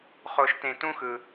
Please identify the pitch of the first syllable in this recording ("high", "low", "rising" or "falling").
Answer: low